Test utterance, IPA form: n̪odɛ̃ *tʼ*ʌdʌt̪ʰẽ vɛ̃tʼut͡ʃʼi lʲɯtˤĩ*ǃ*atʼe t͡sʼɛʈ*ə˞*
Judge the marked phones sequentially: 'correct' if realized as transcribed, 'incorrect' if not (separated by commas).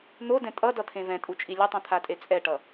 correct, incorrect, incorrect